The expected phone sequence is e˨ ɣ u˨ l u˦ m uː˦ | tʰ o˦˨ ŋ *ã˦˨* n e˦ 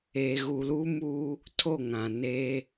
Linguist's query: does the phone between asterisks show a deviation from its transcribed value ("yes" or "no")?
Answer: yes